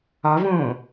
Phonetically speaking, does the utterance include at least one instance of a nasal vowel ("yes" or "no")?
yes